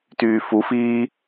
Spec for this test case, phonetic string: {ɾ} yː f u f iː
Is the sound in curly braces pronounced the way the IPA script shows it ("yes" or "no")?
no